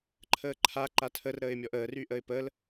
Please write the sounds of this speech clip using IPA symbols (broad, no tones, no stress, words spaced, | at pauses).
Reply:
ǃʰəːǃʰa ǃatʰər ɾəːɪ̯mʲɔʔəːr yʔəɪ̯pəl